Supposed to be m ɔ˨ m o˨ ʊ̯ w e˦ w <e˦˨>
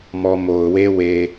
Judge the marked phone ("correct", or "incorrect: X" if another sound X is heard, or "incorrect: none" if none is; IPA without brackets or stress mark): incorrect: e˨